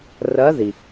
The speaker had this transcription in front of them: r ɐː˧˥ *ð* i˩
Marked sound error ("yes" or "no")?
no